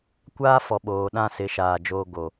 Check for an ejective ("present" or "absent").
absent